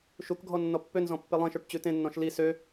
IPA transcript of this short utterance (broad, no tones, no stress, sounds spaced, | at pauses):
ʃ u k ɡʱ ɔ nː ɔ pː ø n z ɔ̃ pː e lˠ ẽ ʃ ɵ ʈ t͡ɕ ʉ t ẽ nː ɔ̃ ʃ l i s ø